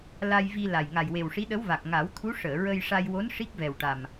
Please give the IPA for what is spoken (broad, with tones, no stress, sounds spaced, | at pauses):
l a˧ j v i˧ l a˨˩ j ŋ a˨˩ j w e˨˩ w ʂ i˧˥ ɗ ə˧˥ w v a˨˩ k̚ ŋ a˨˩˦ w t̪ʰ u˧˥ ʂ əː˨˩˨ ɹ ə˧ j ʂ a˧ j w o˧˥ n ʂ i˦˥ k̚ v ɛ˨˩ w ʈ a˨˩ m